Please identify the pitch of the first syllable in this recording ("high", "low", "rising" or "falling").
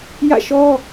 falling